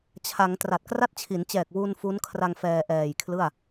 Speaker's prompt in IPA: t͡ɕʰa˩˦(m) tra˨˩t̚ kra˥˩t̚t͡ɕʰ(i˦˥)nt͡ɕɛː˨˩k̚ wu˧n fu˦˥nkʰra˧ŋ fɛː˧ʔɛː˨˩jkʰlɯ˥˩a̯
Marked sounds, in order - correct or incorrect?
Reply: incorrect, incorrect

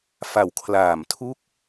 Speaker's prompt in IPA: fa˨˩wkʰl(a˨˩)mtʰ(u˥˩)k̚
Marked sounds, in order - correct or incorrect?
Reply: incorrect, correct

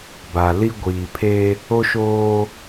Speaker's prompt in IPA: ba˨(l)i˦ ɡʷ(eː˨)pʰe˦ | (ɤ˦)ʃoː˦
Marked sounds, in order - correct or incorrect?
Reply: correct, incorrect, incorrect

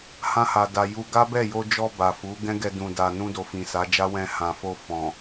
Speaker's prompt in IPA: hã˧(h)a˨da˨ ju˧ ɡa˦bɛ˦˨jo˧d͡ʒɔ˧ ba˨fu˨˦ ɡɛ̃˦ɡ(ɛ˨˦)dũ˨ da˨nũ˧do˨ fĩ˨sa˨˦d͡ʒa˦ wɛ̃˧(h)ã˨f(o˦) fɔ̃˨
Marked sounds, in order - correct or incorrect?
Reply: correct, incorrect, correct, incorrect

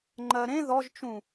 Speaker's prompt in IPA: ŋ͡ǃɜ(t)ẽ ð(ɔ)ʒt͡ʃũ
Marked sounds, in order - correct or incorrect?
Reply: incorrect, correct

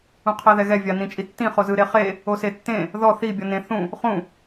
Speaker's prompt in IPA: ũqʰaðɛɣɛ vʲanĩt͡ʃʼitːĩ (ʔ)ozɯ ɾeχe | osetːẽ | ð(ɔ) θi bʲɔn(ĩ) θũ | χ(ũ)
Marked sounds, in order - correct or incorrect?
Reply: incorrect, correct, incorrect, correct

